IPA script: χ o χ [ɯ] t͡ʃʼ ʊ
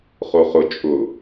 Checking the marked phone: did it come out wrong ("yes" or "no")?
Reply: yes